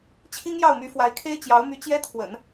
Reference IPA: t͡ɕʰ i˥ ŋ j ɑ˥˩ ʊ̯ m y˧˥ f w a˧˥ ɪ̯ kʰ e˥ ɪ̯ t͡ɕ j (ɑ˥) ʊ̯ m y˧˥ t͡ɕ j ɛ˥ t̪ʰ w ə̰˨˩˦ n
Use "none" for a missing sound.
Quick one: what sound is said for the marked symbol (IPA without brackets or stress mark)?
ɑ˧˥